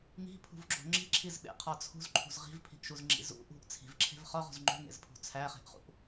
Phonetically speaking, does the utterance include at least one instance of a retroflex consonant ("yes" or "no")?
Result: no